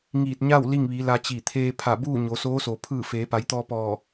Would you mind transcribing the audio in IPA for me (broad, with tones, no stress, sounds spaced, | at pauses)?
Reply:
ŋ iː˧˩ t̚ ɲ a˥˨ w l i˥˨ ŋ ʋ i˩˧ l a˧ t͡ɕ i˧˩ t̪ʰ eː˧ pʰ a˧˩ b uː˥˨ ɲ o˩˧ s oː˧˥ s o˩ pʰ ɯː˧˩ f eː˩˧ p a˩˧ j t̪ ɔː˧ p ɔː˧˩